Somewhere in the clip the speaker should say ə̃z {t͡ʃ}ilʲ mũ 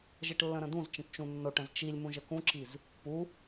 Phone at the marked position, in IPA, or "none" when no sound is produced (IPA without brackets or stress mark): t͡ʃ